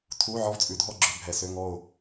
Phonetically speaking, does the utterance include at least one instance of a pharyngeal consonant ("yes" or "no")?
yes